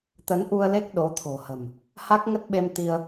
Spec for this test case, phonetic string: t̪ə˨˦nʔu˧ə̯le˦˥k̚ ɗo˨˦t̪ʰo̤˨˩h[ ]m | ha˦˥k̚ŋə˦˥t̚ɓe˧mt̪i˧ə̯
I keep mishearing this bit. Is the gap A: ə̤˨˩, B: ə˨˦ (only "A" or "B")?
A